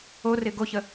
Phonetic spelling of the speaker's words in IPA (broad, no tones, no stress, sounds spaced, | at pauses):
o r ɪ ɡ o ç ə